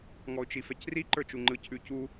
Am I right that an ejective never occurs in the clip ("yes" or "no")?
yes